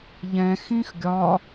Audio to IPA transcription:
ʎ ɛ̃ x ĩ x ɡʲ ɒ

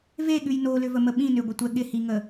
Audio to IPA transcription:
v e ɠ ʉ j n o l ʏ v ə m ə ɓ ĩ n ʏ ɡʷ ə tʷ ɛ ɠ ɪ h i ŋ ə

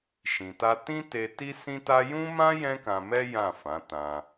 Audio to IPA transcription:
ʃ ĩ˧ t a˦ t ĩ˦ t e˧ t i˦ s ĩ˦ t a˦ j ũ˦ m ã˦ j ɛ̃˦ k ã˧ m ɛ˦ j ã˦˨ f ã˨˦ t ã˧

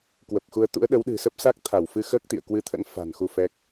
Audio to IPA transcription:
k w ə˨˩ p̚ x u˧ ə̯ t̪ ṵ˧˥ ə̯ ɗ ə˨˦ w ɗ ɨ̤˨˩ s ə˦˥ p̚ s a˦˥ k̚ t̪ʰ a˧˩ w f ɨ˧ x əː˦˥ k̚ t̪ ḭ˧˨ ə̯ k w ɨ˧ t̪ʰ ə̰˧˥ n f a̤˨˩ n x u˧ f ɛ˦˥ k̚

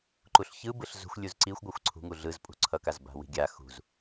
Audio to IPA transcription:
ǃ u ɬ ç ɯ b ɯ ɬ z ṳ xʷ lʲ u z ǀ i xʷ ɡʷ a xʷ ǀʰ ṳ ŋ u ɮ ɯ z pʼ ṳ ǀʰ ʌ k a z b a̤ w i̤ ɡʲ a x ṳ z

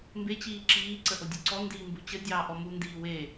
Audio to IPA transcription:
m b e t͡ɕ iː ǁ iː ǀ ə ʔ o dʲ u ǀ ɔ n d iː m b u t͡ɕ ə dʲ ɑː ʔ ɔ m u n d iː w e

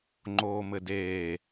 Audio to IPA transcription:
ŋ͡ǃ oː m ɘ d eː

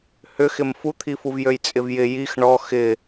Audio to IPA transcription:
h ʏ x ɪ m f u t̪ʰ i f u v j ø j t͡sʼ ɪ v j ɪ j i x ɳ ɔ x ɪ

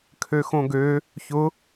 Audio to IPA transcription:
kʰ ø x õ ɡ ø | ç ʊ

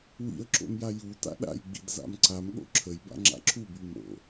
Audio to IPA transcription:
w ḭ ə̯ ǁ o̰ m j a j u t a̰ ɗ a̰ j ɡ͡b ḭ d z a̰ m ǀ a m ɠ o̰ ǁʰ ə j b a̰ ŋ͡ǁ a̰ ǁʰ u b y m o̰

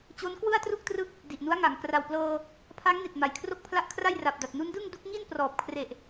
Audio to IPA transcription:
t͡ɕ o˦˥ n k w ɯ˥˩ a̯ t r u˥˩ k̚ t r ɯ˦˥ k̚ | d i˨˩ ʔ n u˦˥ a̯ ŋ a˨˩ ŋ k r a˨˩ w p l ɤː˧ | pʰ a˦˥ ŋ n i˨˩ t̚ m a˨˩ j kʰ r o˥˩ k̚ pʰ l a˥˩ ʔ kʰ r a˥˩ j r a˨˩ p̚ d a˨˩ t̚ n u˦˥ n d ɯ˥˩ ŋ d u˦˥ k̚ ŋ i˥˩ n p r ɔː˨˩ p̚ kʰ r e˨˩ ʔ

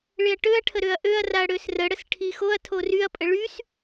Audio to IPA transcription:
ɭ ɪ ɐ̯ ʈ ø ɐ̯ ʈʰ ə ɾ ø ɐ̯ ʔ ø ɐ̯ r a ɐ̯ ɽ ø s r ə ɽ ə s ʈʰ i x o ɐ̯ tʰ o r y ɐ̯ pʼ ə ɭ y s

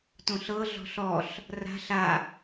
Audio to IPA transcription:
t õ ɬ ɤ ɮ ɔ̤ ɬ ɔ ɬ | r a̤ ɬ a

